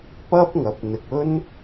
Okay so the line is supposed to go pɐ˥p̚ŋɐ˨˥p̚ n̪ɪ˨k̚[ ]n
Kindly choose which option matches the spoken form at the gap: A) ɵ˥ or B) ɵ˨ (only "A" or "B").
A